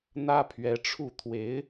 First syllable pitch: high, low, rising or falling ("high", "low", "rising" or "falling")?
high